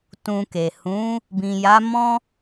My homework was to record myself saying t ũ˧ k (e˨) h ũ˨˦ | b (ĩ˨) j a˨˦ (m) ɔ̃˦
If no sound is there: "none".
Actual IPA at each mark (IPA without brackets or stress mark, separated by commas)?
e˨, ĩ˨, m